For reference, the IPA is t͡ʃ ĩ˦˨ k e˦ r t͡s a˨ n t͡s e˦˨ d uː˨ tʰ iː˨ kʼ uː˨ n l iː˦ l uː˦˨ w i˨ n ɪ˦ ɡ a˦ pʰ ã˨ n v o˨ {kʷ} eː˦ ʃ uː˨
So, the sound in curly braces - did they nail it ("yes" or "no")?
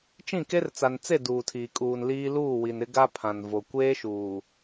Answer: yes